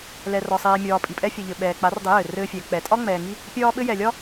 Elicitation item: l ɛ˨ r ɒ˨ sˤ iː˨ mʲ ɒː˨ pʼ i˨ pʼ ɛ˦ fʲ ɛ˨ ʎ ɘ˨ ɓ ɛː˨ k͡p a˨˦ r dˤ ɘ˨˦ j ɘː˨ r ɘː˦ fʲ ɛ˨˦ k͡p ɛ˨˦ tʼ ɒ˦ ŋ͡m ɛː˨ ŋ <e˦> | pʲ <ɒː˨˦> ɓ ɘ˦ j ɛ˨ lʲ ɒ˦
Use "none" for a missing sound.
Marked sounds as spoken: i˦, ɒː˦

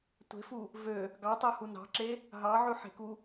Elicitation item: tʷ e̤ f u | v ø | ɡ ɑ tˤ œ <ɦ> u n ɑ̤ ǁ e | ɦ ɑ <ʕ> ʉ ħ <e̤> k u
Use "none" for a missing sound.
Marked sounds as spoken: h, ʕ, e̤

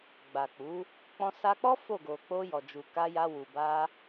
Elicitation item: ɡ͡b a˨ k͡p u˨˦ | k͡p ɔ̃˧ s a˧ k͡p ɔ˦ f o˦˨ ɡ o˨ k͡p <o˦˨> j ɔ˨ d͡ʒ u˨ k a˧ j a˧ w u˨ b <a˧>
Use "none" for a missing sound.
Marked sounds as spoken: o˧, a˧

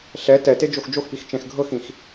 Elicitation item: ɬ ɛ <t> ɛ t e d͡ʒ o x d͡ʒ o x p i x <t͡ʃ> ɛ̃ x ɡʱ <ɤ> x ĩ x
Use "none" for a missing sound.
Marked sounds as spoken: t, t͡ʃ, ɤ

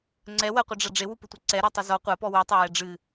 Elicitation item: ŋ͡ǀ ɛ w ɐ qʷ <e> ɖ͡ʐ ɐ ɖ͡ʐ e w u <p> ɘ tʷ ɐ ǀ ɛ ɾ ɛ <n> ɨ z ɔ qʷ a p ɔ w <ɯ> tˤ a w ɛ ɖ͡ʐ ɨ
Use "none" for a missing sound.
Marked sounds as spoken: ɨ, p, tˤ, u

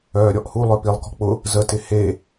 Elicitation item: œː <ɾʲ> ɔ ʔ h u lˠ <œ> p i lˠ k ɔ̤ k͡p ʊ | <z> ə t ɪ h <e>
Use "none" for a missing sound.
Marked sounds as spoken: ɾʲ, œ, z, e

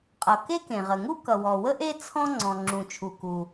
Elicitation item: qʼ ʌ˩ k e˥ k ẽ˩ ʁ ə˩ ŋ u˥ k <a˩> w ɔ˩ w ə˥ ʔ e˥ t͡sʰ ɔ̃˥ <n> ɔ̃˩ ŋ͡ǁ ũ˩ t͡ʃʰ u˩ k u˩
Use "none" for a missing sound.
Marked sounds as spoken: ʌ˩, ŋ͡ǀ

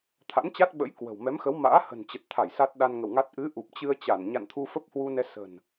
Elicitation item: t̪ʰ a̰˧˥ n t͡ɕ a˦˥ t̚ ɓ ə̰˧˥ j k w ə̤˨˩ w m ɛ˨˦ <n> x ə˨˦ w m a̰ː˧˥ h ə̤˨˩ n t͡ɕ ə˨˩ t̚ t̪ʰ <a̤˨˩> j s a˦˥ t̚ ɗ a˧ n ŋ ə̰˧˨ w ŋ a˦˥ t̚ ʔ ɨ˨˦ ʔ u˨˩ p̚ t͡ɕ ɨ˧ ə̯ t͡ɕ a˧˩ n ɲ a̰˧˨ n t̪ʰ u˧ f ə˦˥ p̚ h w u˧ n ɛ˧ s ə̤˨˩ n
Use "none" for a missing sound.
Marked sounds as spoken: m, a˧˩

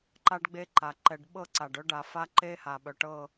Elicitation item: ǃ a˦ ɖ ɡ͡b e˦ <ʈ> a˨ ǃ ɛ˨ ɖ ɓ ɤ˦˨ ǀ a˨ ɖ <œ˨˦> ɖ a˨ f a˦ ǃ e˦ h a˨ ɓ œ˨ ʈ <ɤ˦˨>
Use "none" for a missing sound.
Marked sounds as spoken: ǃ, œ˦, ɤ˦˨

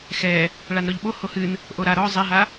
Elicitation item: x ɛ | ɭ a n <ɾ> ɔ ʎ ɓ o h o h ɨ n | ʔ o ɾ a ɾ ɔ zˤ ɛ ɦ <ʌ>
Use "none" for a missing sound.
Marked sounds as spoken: ɾ, a

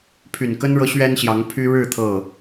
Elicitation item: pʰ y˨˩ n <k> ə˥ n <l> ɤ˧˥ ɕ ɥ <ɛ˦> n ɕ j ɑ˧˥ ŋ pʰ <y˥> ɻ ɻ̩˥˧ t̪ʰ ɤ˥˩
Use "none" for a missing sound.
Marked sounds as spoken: k, ɻ, ɛ˥, y˥

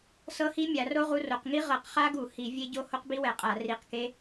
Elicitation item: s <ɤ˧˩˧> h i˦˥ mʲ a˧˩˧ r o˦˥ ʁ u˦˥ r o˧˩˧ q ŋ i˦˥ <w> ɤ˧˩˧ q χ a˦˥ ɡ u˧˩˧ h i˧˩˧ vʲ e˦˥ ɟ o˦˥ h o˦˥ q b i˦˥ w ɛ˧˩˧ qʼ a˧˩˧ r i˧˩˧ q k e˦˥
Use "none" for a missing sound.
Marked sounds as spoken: ɤ˦˥, ʁ

